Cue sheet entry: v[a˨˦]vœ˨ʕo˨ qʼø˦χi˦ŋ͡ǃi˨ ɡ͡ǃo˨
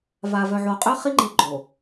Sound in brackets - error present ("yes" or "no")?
yes